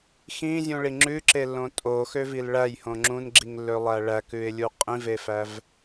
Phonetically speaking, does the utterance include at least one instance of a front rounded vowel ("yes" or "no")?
yes